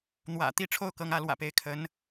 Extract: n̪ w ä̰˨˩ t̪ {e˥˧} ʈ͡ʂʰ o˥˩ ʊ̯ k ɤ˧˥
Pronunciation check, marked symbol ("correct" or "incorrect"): incorrect